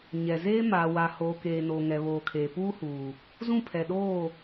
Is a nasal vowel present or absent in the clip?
present